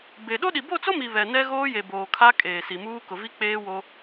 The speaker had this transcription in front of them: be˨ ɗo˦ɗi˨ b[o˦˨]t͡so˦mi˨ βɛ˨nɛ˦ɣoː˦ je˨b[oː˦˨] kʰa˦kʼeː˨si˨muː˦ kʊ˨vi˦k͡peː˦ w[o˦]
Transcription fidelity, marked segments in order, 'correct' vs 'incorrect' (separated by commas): correct, incorrect, correct